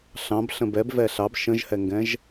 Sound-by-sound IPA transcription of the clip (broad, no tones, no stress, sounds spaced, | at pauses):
ɬ ɑ̃ b ɬ ə̃ b ɛ b v ɛ ɬ ɑ b ʃ ə̃ ʒ h ɛ ŋ ɡ ɛ̃ ʒ